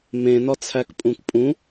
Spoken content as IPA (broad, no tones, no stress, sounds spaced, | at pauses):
m ẽ n ɒ t͡sʰ æ k pʼ ũ k pʼ ũ